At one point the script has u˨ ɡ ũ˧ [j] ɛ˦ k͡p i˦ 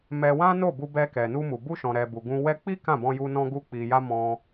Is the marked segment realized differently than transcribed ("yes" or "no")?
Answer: yes